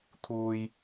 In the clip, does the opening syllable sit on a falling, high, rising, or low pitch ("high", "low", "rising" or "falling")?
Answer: low